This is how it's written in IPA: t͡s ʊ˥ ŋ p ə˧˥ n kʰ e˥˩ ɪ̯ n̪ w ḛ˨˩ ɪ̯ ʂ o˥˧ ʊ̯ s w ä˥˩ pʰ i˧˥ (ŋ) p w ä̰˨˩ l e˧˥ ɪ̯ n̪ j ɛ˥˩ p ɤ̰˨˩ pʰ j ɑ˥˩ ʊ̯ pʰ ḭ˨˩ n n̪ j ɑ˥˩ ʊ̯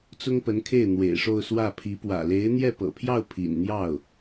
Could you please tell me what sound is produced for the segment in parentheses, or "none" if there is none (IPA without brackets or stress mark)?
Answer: none